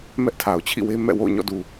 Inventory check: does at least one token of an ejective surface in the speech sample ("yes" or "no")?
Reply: no